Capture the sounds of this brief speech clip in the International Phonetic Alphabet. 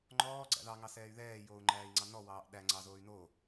ŋ͡ǃɔːɡ͡ǀæ̰ ðɑŋɑsɛːy̯ ðɛːjoːu̯ŋ͡ǃæːi̯ŋ͡ǀɑ nɔwɑːʔ ɗæŋ͡ǀɑzoːy̯ no

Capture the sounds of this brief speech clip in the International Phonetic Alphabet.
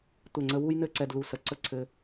tʷɛ˧˩ŋ͡ǀə˧wu˥j nɘ˥˧ǀɛ˧d lu˧˩sə˧˩ǀə˥ǀʰɘ˧

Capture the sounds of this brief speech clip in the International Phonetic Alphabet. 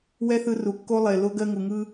wɛ˦θɯ˧ru˨kːo˦ lˠe˨ lo˧ɡɜ˧ŋu˨ŋɯ˦

